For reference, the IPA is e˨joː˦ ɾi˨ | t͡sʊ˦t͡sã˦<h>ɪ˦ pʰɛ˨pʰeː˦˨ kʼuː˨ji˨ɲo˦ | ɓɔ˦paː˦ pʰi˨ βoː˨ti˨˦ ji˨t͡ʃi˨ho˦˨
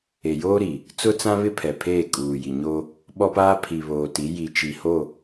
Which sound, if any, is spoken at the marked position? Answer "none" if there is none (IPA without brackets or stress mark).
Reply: β